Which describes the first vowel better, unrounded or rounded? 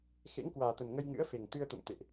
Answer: unrounded